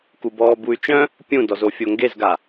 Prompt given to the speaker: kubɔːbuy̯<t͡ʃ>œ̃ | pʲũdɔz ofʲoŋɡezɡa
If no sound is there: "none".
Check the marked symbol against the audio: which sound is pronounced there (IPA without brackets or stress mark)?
t͡ʃ